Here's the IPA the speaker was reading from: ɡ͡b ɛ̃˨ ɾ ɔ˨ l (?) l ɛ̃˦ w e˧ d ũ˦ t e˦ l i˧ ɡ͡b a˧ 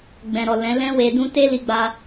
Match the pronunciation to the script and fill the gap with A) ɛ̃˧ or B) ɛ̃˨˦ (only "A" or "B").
B